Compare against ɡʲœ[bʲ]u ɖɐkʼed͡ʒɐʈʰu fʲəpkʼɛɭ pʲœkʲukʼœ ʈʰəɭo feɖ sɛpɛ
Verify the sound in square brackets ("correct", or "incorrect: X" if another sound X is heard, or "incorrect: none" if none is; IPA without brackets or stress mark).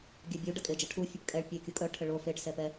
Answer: correct